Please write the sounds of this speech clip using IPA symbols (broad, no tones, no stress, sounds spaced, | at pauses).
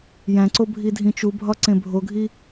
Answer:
j æ̃ ǀ o bʱ i dʱ ĩ t͡ʃ u bʱ ɒ ǀ ẽ bʱ o ɡʱ i